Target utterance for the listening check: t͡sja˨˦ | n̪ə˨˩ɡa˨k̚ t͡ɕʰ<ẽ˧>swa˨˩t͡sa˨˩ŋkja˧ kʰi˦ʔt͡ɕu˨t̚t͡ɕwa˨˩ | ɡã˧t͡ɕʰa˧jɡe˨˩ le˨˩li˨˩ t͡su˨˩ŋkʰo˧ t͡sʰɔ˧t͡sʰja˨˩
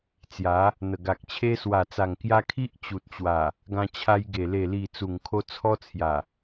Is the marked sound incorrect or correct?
incorrect